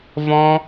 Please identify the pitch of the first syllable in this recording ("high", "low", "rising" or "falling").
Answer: high